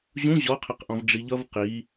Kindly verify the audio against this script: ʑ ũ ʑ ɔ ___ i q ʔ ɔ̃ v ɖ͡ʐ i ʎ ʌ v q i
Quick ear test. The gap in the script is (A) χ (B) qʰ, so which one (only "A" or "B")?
B